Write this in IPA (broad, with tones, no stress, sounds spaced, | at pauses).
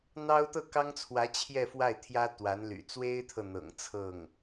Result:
n̪ ɑ˥ ʊ̯ t̪ ɤ˥˩ k ɑ˥ ŋ t͡sʰ w ä˧˥ t͡ɕʰ j ɛ˥˧ f w a˥˩ ɪ̯ t̪ʰ j ä˥ t̪ w a˧˥ n l y̰˨˩ t͡s w e˥ ɪ̯ t̪ʰ ɤ˨ n̪ ɤ̰˨˩ ŋ t͡sʰ ɤ˥˩ ŋ